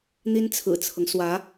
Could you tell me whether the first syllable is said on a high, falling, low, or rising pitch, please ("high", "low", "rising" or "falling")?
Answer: high